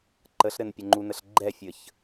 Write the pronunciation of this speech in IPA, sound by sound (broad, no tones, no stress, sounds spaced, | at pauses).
ǃ ə ɬ ɾ ɘ n pʲ ɘ ŋ͡ǃ u n ə ɬ ɡ͡ǃ ɛ fʲ ə ç